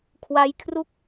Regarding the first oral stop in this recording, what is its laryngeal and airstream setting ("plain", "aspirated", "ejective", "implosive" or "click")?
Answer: aspirated